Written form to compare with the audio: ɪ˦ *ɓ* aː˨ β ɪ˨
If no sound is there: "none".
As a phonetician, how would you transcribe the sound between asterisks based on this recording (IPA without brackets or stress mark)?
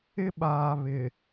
ɓ